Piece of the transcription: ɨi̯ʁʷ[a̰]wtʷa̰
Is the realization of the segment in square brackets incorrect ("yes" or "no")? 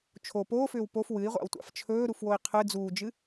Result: no